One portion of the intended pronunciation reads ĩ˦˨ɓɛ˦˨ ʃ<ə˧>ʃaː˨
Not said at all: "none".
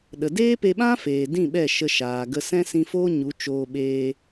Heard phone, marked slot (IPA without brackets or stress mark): ə˧